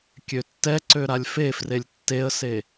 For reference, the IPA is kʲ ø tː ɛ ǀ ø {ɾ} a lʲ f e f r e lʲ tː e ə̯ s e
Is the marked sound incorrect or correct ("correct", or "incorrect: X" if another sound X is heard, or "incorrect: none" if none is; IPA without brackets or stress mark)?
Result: correct